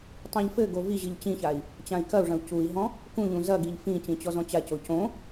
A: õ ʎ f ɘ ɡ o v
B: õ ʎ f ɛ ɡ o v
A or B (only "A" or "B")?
A